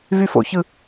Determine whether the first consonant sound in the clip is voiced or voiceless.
voiced